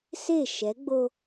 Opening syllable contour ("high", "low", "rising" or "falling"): falling